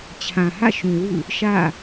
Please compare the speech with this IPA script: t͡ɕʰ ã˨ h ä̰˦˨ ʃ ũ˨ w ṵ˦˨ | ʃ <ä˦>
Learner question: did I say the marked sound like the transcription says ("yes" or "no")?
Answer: no